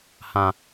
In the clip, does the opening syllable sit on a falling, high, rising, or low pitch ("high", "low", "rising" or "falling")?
low